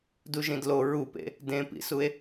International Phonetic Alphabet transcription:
d u ʒ ĩ d l o ɹ u p ḛ | d ẽ p ḭ s u e̯

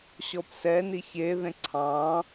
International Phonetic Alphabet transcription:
ɕ ɔ p s ɛ n i ç e ð ẽ ǀʰ ɑ̃

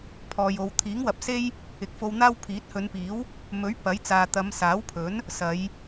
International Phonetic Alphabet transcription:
pʰ ɔː˨ j o˨ w t̪ʰ iː˨˥ ŋ w ɐ˨ p̚ s e˥ j | ɪ˨˥ k̚ f o˧ w n̪ aː˥ w pʰ iː˨˥ t̚ h ɵ˨˧ n p iː˨˥ w | m ɵ˨˥ ɥ p ɐ˨˥ j t͡s aː˨ t̪ ɐ˨˧ m s aː˨˥ w pʰ ɵ˨˥ n | s ɐ˨˧ j

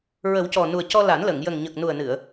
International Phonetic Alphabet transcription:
ɹ ə˨˩˦ w c ɔ˨˩ n u˨˩ ə̯ c ɔ˧ l a˨˩˦ n l ə˨˩˨ ŋ j ə˨˩ ŋ ɲ ə˨˩ k̚ n u˨˩ ə̯ n ɨ˨˩˨ ə̯

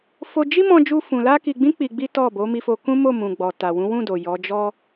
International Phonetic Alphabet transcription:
f o˧ d͡ʒ i˦ m ɔ̃˦ d͡ʒ u˦ f ũ˧ l a˦ k i˧ ɡ͡b ĩ˦ k͡p i˧ ɡ͡b i˦ t ɔ˦˨ b o˨˦ m i˧ f o˧ k ũ˦ m o˦˨ m ũ˨ ɡ͡b ɔ˨ t a˨ w ũ˨˦ w ũ˦˨ d o˨ j ɔ˨˦ d͡ʒ ɔ˦

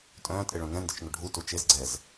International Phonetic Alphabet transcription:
tʼ œ̃ː tʼ e ɭ œ̃ ŋ ɛ̃ n d ɪ t͡ʃ ŋ ʊ ɖʱ u t u t͡ʃ e z ɡ͡ǀ ɛ z

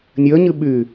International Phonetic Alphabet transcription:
nʲ əː ɲ ɨ ɓ yː

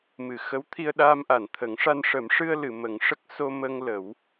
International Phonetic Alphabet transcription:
m ɨ˨˩˨ x ə˧˥ w t̪ʰ i˧ ə̯ ɗ aː˧ m ʔ a˨˩˨ n t̪ʰ ə˨˩˦ ŋ ʂ a˧ n ʂ ə˨˩˦ m ʂ ɨ˧ ə̯ l ɨ˨˩˨ m ə˨˩˦ ŋ ʂ ə˦˥ k̚ s o˧ m ə˧ ŋ l ə˨˩˦ w

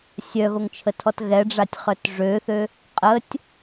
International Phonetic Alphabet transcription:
sʲ œ ɣ o ŋ t͡ʃʰ ə tʰ ɔ t ɣ ɛ ɖ͡ʐ a tʲ χ œ t ʐ ø θ ø | qʼ ə tʲ

